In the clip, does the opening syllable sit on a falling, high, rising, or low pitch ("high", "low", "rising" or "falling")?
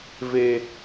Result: high